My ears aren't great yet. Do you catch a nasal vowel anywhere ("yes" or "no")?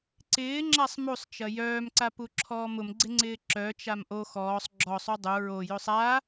no